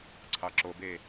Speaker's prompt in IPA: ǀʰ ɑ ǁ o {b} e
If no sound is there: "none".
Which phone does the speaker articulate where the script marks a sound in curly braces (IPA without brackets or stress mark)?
b